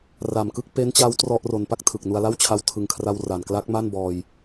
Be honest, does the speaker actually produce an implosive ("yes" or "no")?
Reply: no